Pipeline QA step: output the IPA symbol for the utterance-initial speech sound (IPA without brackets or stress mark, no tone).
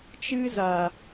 t͡ʃ